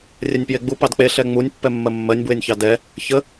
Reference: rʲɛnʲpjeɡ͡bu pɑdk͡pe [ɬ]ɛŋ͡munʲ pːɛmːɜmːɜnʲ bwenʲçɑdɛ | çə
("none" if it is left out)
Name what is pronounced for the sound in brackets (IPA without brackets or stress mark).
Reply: ɬ